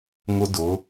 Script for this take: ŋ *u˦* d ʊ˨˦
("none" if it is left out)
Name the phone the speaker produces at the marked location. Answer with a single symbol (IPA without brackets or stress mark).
ʊ˦